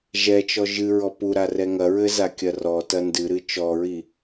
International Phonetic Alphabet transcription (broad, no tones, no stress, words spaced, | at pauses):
ʒɛt͡ʃɔ ʒɨ ɹɔpuɾa rɛŋɐɹɘ zakʲɐrɔtɐ ndɨɾɨ t͡ʃɔɹi